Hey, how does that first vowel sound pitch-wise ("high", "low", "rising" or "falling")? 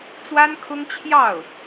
high